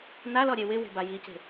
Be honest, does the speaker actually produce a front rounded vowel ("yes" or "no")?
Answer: no